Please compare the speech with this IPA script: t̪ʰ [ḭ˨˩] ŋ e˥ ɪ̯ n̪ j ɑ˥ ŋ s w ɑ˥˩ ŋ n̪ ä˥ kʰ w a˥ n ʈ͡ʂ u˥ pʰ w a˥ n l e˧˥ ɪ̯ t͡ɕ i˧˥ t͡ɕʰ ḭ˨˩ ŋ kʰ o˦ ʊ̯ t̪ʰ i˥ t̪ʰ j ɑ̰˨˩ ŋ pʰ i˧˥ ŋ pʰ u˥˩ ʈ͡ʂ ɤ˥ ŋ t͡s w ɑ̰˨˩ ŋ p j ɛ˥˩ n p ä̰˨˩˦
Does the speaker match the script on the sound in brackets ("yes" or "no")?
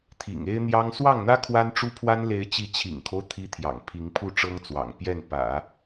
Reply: yes